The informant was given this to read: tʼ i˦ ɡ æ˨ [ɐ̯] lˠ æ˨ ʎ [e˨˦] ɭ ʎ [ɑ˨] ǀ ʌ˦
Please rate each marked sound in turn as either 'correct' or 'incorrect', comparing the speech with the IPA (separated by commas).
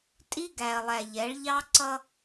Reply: correct, incorrect, incorrect